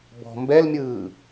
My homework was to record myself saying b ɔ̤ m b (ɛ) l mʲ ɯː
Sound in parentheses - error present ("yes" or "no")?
no